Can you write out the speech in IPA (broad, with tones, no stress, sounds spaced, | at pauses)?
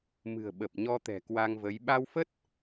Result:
m ɨ̤˨˩ ə̯ ɓ ə˨˩ p̚ ɲ ɔ˧ t̪ ɛ̤˨˩ k w a˧ ŋ v ə˨˦ j ɓ a˧ w f ə˦˥ t̚